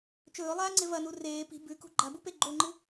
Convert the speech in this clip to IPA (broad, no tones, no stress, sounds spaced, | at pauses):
t͡ʃ ɵː lˠ aː ŋ͡ǀ e v ɐ n u r eː p i̤ b ʉ k ṳ ɡ͡ǃ a b u p e ɡ͡ǃ o ŋ͡ǃ ɨ